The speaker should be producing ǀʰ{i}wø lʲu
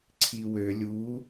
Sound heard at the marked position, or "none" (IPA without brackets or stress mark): i